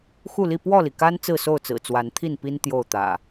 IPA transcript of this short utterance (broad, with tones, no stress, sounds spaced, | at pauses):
x u˥˨ l i˥˨ p w ɔ˥˨ l i˩ k a˦ n t͡s ɹ̩˥˨ s o˥˨ ʊ̯ t͡s ɹ̩˨˩ t͡s w a˨˦ n t̪ʰ i˥˨ n p i˦ n t̪ j o˥˨ ʊ̯ t̪ ä̰˨˩